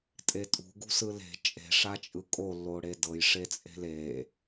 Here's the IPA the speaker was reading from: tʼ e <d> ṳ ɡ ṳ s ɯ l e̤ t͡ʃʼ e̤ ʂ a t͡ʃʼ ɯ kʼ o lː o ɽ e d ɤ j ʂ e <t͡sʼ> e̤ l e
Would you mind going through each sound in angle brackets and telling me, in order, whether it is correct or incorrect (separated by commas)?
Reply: incorrect, correct